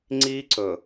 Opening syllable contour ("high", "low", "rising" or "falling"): high